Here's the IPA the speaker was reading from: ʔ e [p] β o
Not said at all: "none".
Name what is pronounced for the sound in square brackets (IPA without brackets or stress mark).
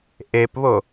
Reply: p